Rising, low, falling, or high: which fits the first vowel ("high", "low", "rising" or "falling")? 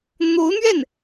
rising